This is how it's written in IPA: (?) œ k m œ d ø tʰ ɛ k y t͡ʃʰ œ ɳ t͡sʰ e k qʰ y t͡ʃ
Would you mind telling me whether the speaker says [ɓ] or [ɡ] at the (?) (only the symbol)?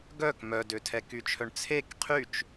ɡ